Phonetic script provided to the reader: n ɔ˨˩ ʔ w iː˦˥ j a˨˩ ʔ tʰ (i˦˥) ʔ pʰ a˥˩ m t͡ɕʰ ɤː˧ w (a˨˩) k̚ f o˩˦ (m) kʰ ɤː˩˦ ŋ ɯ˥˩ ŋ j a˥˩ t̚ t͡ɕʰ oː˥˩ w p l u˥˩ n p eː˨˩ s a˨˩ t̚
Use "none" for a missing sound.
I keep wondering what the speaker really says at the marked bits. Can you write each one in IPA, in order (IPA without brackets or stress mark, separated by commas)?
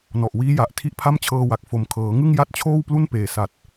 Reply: i˦˥, a˨˩, m